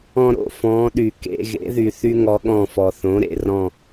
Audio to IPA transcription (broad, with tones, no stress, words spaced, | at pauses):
ɔ̃˥ɾo̰˦˨fɔ̃ː˧˥ɗy˨ kḛ˧˥˧ɣḛ˧˥ðy˨ θy˥ŋɔ˧˥ɠɔ̃˦˨fɔ˨ θõ˩˥ɾḛ˨ rɔ̃˦˨